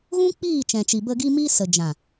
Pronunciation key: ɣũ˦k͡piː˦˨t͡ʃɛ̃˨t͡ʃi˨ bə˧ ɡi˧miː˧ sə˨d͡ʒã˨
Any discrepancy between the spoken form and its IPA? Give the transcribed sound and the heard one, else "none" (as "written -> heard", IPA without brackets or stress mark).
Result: none